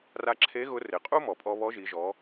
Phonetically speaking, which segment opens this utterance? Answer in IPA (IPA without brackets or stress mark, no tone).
r